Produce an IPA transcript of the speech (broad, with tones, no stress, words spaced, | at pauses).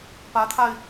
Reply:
pä˧˥t̪ʰa˧ɪ̯